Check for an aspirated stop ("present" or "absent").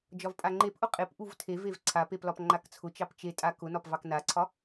present